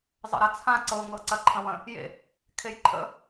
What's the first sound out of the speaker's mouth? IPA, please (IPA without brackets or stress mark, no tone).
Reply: zˤ